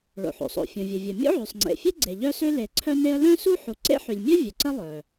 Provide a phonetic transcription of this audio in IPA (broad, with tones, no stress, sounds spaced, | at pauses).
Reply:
ɭ o̰˩ ħ o̰˩ sˤ o̰˩ fʲ õ˩ vʲ ə˩ vʲ ə˩ mʲ o̰˥ ʕ y˩ sˤ ŋ͡ǀ ḛ˩ fʲ e˥ ɡ͡ǀ e˩ ʎ œ˥ s ø˥ l e˩ ǀʰ œ˥ n e˥ ə̯ l œ̃˥ s u˥ ħ u˩ ǀ ḛ˥ ħ y˩ lʲ mʲ œ˥ vʲ œ˩ ǀ ə˥ lˠ œ˩